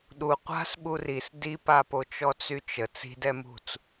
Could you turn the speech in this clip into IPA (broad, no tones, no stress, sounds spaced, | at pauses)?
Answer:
ɗ u qʷ a̤ s ɓ u r i s d i p a p o t͡ʃ ɔ t͡s y t͡ʃ ə t͡s i̤ d ɛ m ṳ t͡s